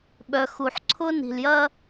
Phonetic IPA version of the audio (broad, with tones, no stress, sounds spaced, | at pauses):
ɓ œ˨ x u˨ ħ ǀʰ ʊ˦ n i̤˨ l j ɐ˦